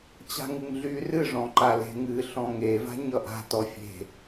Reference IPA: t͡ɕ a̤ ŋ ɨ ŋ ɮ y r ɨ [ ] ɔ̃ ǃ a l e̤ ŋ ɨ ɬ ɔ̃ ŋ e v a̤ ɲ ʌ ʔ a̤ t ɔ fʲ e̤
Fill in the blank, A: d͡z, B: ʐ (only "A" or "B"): B